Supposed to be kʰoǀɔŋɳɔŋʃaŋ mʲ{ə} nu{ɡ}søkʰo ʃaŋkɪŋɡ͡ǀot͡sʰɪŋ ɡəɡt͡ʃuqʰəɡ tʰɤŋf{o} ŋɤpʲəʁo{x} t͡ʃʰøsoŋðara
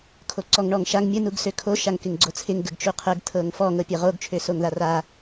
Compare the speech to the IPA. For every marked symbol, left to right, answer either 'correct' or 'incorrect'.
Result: correct, correct, incorrect, incorrect

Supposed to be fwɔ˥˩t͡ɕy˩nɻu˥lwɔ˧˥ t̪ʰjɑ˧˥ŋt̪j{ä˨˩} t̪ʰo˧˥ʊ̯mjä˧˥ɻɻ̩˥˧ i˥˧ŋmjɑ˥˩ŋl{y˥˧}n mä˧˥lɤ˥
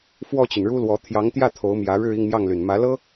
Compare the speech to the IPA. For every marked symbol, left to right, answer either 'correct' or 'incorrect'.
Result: incorrect, incorrect

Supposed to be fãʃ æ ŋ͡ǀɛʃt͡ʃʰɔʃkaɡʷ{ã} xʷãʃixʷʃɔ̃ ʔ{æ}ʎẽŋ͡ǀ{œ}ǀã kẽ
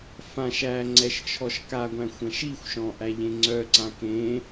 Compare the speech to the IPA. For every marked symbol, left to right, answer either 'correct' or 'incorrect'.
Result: incorrect, correct, correct

